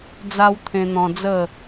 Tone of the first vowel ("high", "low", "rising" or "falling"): high